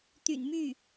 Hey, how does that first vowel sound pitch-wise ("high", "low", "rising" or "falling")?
low